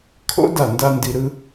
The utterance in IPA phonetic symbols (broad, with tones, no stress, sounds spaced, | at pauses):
kʰ o̰˦ d a˦˨ n d a˦ n d i˧ ɾ ɯ˦